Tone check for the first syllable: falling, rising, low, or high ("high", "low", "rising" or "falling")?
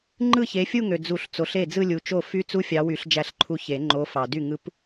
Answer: falling